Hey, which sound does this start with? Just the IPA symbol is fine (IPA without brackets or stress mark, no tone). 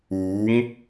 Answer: uː